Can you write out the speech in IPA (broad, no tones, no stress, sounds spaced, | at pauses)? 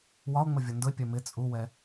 w ɒ o̯ ŋ͡m ə vʲ ɒ n d ʊ e̯ pʲ ɜ m ɪ t͡sʼ u w ɛ